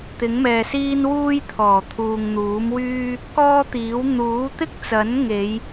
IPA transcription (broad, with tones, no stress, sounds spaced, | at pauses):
t̪ ɪ˨˥ ŋ m ɛː˨ s iː˥ n w uː˥ j t̪ʰ ɔː˨˩ t̪ʰ uː˨ ŋ n̪ uː˨˥ m w yː˥ | k ɔː˥ t̪ iː˨˥ w n̪ uː˨˥ t̪ ɪ˥ k̚ t͡s ɐ˨˥ n ŋ e˨˧ j